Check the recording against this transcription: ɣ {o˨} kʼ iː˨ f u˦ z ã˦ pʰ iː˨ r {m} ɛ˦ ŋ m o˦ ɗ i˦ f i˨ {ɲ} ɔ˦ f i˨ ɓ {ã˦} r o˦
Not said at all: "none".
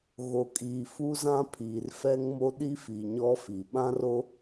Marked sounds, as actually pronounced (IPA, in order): o˨, f, ɲ, ã˦

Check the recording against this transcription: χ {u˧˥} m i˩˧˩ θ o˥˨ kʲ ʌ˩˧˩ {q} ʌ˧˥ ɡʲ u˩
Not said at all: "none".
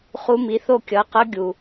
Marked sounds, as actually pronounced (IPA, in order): u˧˥, q

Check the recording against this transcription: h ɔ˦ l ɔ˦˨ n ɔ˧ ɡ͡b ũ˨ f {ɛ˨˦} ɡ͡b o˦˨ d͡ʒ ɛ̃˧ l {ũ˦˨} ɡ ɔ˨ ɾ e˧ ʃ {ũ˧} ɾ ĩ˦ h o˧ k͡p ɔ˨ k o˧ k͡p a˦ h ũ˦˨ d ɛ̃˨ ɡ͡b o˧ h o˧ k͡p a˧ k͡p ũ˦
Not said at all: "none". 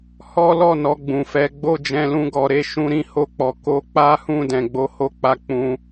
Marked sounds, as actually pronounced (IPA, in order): ɛ˨˦, ũ˧, ũ˧

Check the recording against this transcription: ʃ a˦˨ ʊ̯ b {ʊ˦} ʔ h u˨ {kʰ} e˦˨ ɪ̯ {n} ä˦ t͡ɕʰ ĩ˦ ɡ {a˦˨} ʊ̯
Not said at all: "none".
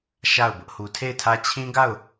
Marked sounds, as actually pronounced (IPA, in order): ʊ˦, tʰ, tʰ, a˦˨

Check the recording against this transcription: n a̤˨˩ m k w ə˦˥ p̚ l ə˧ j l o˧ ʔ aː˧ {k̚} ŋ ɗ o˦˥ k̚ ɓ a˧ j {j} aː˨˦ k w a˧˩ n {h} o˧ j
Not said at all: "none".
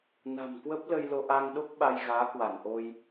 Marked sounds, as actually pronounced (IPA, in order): none, ɣ, ʔ

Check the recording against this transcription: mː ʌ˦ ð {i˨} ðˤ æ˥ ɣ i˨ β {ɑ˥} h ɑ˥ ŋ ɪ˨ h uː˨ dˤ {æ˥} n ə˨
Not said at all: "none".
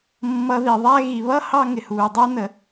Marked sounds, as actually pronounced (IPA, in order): i˨, ʌ˥, æ˥

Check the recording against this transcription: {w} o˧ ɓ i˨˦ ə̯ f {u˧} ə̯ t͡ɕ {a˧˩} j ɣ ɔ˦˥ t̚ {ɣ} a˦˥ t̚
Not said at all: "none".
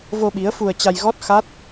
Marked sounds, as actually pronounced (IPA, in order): v, u˧, a˧, x

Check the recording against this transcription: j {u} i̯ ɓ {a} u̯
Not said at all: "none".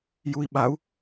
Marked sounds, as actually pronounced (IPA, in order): u, a

